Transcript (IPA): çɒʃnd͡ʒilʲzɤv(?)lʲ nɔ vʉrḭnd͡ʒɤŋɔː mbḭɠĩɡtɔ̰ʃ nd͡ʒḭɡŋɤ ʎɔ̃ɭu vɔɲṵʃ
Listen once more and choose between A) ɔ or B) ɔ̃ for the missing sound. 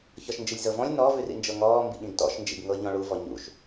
B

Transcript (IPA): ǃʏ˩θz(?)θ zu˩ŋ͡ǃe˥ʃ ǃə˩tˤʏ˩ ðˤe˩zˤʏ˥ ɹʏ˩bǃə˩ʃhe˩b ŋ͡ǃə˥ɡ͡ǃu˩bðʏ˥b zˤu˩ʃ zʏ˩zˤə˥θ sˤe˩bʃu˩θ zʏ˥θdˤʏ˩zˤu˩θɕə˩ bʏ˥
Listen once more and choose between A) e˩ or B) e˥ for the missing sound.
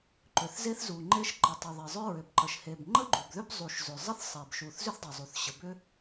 B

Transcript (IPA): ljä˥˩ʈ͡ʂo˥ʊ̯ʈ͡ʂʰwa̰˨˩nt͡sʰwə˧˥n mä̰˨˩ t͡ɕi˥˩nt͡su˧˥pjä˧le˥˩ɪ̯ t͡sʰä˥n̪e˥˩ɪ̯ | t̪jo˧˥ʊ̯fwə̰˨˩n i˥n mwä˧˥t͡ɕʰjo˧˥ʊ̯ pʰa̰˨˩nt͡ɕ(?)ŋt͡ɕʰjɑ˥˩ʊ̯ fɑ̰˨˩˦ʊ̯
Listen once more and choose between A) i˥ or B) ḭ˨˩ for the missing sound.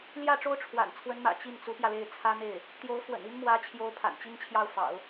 A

